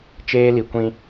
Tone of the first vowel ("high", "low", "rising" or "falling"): high